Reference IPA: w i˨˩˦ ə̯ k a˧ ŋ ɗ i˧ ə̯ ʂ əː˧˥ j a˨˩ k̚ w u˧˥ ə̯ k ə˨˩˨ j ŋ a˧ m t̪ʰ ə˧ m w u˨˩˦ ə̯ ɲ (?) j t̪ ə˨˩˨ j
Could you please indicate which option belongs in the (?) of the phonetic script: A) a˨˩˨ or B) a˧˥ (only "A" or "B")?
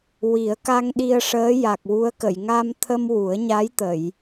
B